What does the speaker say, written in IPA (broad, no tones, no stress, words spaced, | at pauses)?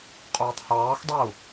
qʼuːtˤhɑːxdˤɛu̯